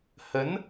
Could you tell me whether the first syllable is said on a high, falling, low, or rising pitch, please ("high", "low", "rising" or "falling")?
rising